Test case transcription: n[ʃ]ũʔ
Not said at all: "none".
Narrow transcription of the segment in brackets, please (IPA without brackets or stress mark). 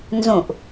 z